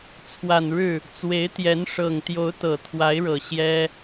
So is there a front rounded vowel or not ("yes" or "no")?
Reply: no